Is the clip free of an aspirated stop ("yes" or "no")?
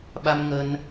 yes